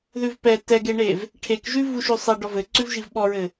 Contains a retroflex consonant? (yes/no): yes